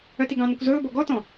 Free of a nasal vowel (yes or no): no